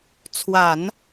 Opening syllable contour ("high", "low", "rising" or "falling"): low